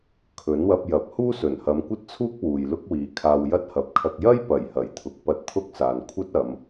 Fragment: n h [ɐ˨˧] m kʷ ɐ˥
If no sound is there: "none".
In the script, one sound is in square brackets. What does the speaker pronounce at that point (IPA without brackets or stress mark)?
ɐ˨˧